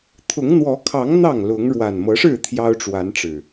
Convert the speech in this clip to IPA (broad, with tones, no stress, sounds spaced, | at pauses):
t̪ʰ ʊ˨˦ ŋ n̪ w ɔ˨˦ kʰ ɑ˨˦ ŋ n̪ ɑ˥˨ ŋ l ʊ˨˦ ŋ ɻ w a˨˩ n m ɤ˨˦ ʂ ɻ̩˥˨ t̪ʰ j ɑ˦ ʊ̯ ʈ͡ʂ w a˨˦ n ʈ͡ʂ ɻ̩˨˩